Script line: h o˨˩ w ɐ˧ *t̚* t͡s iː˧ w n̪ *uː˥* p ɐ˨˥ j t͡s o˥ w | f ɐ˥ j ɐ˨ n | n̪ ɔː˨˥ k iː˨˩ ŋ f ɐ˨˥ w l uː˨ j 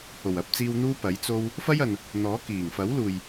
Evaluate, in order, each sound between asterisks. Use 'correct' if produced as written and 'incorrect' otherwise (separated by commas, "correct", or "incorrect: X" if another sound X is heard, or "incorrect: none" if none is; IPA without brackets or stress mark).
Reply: incorrect: p̚, correct